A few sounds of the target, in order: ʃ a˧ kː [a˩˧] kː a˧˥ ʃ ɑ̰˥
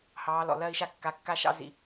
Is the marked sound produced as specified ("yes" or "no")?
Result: yes